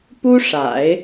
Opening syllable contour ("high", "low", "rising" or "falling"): high